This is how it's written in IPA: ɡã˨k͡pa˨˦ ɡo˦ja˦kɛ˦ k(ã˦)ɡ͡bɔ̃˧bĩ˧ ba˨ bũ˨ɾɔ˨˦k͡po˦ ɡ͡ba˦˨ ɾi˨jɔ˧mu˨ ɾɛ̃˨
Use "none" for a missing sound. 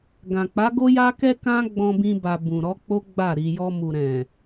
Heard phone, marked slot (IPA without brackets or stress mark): ã˦